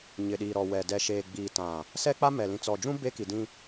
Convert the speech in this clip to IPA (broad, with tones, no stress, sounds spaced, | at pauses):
ɲ ɪ˨ ɗ iː˨ ɾ ɔ˨ w ɛ˨ d ɛ˨ ʃ eː˨ ɡ͡b iː˨ t ã˨ | s ɛ˦ k͡p a˦ m ɛ˨ l ĩ˨ t͡s ɔ˨ d͡ʒ ũ˦ b e˦ k i˨ d ĩ˦